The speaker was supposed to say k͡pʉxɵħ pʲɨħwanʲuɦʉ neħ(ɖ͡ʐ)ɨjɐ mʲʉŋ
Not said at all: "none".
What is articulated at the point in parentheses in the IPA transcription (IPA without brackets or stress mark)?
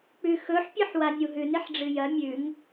ɖ͡ʐ